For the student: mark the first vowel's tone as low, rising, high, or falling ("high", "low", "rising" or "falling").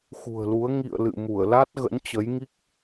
low